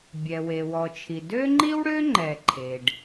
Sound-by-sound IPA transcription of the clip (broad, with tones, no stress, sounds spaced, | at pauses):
bʲ ɛ˩ w e˩ w ɔ˩ t͡ʃʰ i˩ d ø˥ ŋ͡ǃ i˥ w ɽ ø˥ ŋ͡ǃ ɛ˩ ǃʰ e˩ ɖ